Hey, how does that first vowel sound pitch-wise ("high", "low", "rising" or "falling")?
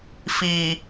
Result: low